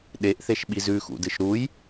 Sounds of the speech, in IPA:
ɗ e ʔ θ e ʃ ɓ i z ʉ x ṵ d ɨ ʃ ɾ u j

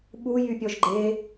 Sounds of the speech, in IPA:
ɓ u j y pʲ ɔ ʒ ɡ͡ǃ e

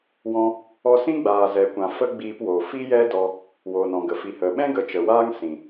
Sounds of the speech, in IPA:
w ɔ̃˧ | ɔ˧ s ĩ˦ ɡ͡b aː˨ z ɛ˨ kʷ ã˨ f ə˦ ɡ͡b iː˧ p w oː˨ f i˦ j ɛ˦ d ɔ˧ | w oː˨ n ɔ̃˨ ɡ ə˨ f i˨ h ə˨ ɓ ɛ̃˦ ɡ ə˨ t͡ʃ ə˨ w aː˦ ŋ s ĩ˨

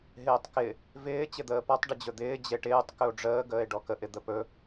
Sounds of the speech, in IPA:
ɦ ɪː tˤ k ɪ | v ɪː t͡ɕ ɪ d̪ əː p ɔ tˤ ɖ ɪ d͡ʑ ɵ d̪ ɪː d͡ʑ e ʈ ɪː tˤ k ɵ o̯ ɖ͡ʐ əː ɡ əː e̯ ɖ ɔ k ə ʔ ɪ d̪ ə p ɵ

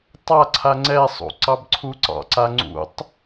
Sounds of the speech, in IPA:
tˤ a ǀʰ a ŋ͡ǀ ɛ sˤ ṵ ǀ ɑ b ǀʰ u ǀ ɑ̰ ǀ a ŋ͡ǀ ṵ tˤ

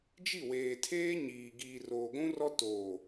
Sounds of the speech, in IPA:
d͡ʒ i˦˨ w eː˨ tʰ eː˦ ɲ iː˨ ɡ iː˨ r oː˨ ɡʷ ũ˦ r ɔ˦ t oː˨

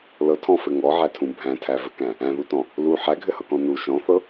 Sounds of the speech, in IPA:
l ɤ tʰ ɔ̃ f ɘ ŋ ɔ ʕ æ tʰ ũ bʱ æ̃ tʰ æ v ɘ k æ̃ | æ̃ ð u t ɔ̃ | l u ħ æ ɡʱ ɘ h ɤ k ɔ̃ n u ʃ ɔ̃ θ ɤ

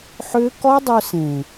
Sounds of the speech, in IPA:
ħ ʏ˦ k ɔ˦ dˤ ɵ˧ s ẽ˨

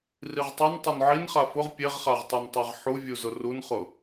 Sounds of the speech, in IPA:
r i ʁ tˤ e n tˤ o n ʕ i n χ a f ʊ ʁ pʲ e ʁ χ a ʁ tˤ o n tˤ a ʁ ħ u vʲ u z ʊ r u n χ ʊ

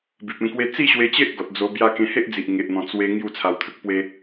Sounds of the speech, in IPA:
b i˨ p̚ ẽ˥˧ k w e˦ t͡s i˥˧ ɕ w e˧ t͡ɕ e˦ ʔ ɡ ɔ˨ t̚ d͡z o˧ b j a˥˧ k ẽ˧ h e˦ ʔ d͡z i˨ ʔ ŋ e˨ ʔ n̪ ɔ̃˨˩ t͡s w e˦ ŋ j u˥˧ t͡sʰ a˧ w t̪ʰ ə˦ k̚ p w e˦

